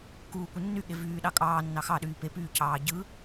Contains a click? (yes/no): no